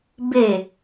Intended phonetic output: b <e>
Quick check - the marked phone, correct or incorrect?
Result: correct